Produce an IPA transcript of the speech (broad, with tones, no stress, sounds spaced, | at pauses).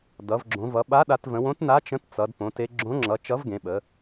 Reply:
d ʌ˩˧ v ɡ͡ǁ õ˩˧ v ʌ˩˧ ɓ a˨˥ ɗ a˩˧ t v ə̃˩˧ w õ˨˥ t n a˨˥ t͡ʃ ə̃˨˥ t t͡s ʌ˩˧ d p õ˩˧ t e˩˧ ɡ͡ǁ õ˨˥ ŋ͡ǁ ʌ˩˧ t͡ʃ ʌ˨˥ v ɡ ẽ˩˧ ɓ ə˩˧